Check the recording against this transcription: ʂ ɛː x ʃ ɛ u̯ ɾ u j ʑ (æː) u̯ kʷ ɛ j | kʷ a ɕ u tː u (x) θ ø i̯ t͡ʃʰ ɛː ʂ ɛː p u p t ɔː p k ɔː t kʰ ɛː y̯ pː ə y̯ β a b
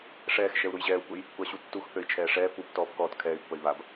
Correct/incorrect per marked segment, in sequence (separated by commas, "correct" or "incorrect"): incorrect, correct